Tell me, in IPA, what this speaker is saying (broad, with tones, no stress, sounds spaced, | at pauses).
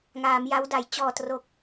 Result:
ŋ aː˩˦ m j a˦˥ w d a˩˦ j t͡ɕ ɔː˨˩ t r o˨˩ k̚